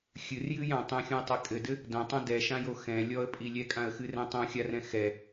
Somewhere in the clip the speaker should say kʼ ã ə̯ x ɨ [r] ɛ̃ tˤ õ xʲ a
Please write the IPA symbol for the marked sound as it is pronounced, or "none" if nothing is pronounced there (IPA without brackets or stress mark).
r